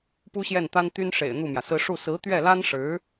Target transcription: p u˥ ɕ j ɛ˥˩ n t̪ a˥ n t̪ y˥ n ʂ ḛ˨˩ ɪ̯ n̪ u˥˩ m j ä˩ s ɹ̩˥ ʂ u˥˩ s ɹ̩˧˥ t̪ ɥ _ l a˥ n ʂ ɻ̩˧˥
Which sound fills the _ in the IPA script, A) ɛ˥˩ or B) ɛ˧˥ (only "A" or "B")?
A